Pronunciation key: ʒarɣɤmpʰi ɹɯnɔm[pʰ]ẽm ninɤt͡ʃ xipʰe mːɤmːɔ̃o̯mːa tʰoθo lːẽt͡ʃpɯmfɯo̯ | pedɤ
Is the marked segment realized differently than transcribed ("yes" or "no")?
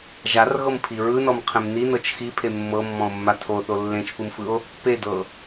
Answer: yes